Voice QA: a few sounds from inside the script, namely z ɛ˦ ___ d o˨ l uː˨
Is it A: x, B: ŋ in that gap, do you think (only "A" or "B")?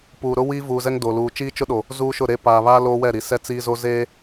B